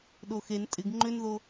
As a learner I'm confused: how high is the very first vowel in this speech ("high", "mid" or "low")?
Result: mid